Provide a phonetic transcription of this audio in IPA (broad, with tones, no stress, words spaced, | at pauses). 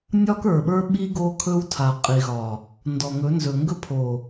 nʲɒ˦kə˞˨ɓə˞˦ ɓi˦ ɡo˦kʰɵ˦wtʰa˨ qʼi˨ɣɒ˨ | ndɔ˨ŋɵ˨˦ nzɵ˨ŋɡɵ˦pʰo˨